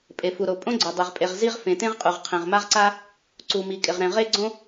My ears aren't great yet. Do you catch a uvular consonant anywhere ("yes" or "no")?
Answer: yes